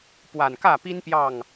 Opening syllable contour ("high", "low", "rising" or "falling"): low